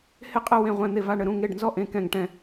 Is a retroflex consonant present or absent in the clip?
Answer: present